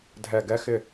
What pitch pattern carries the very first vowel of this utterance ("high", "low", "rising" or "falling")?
low